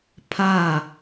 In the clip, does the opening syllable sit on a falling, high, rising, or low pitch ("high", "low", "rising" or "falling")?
falling